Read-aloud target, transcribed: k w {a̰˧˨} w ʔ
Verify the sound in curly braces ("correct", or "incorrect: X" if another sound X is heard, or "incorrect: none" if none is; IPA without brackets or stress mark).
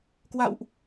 correct